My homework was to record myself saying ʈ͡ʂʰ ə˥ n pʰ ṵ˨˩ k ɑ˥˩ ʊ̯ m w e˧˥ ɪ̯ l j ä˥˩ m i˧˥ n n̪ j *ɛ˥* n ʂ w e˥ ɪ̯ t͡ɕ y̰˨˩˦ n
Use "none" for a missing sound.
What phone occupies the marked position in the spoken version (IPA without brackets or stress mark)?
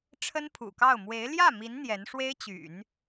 ɛ˧˥